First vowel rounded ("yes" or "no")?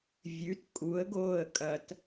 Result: yes